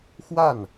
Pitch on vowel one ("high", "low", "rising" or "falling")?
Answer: falling